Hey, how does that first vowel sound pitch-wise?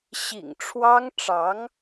low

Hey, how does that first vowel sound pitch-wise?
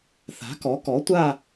rising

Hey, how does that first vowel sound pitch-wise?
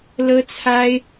high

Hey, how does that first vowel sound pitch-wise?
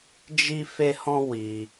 high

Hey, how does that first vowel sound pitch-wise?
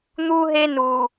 high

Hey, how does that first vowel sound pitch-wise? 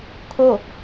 falling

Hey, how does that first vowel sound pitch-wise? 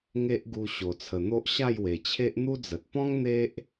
high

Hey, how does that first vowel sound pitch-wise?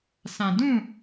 low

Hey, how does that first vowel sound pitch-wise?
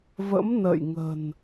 rising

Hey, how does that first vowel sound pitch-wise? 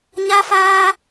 high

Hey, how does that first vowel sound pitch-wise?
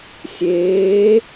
rising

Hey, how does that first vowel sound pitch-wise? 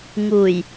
low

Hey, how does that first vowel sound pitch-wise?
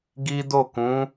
high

